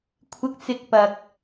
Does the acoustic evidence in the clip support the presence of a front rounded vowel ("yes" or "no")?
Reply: no